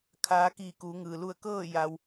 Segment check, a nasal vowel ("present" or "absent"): absent